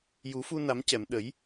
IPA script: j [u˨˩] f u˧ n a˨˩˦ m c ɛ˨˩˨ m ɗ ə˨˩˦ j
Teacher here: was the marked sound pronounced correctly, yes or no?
no